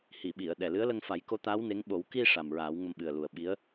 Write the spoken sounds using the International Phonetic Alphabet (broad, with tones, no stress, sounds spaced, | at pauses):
h i˨˩˨ ɓ i˨˩˨ ə̯ ɗ ɛ˨˩ l ɨ˧˥ ə̯ l ə˧ ŋ f a˨˩˦ j k o˧˥ t̪ aː˧˥ w n e˧˥ ŋ ɓ o˨˩˦ w k i˧ ʂ a˨˩ m ɹ aː˨˩˦ w ŋ ə˧ m ɓ ɨ˨˩ ə̯ l u˨˩ ə̯ ɓ i˧˥ ə̯